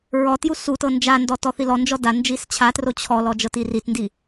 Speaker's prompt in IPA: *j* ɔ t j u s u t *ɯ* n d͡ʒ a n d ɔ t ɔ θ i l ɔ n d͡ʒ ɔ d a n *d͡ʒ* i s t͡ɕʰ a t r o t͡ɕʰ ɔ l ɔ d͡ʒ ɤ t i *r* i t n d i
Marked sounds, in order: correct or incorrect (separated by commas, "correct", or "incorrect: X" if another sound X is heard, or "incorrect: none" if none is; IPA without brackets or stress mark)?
incorrect: ɹ, incorrect: ɤ, correct, correct